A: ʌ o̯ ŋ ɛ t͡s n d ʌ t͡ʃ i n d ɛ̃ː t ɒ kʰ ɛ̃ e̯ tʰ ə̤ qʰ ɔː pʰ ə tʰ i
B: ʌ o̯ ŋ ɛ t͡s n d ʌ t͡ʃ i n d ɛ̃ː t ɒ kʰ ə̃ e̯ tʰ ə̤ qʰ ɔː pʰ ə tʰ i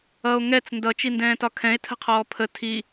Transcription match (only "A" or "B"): A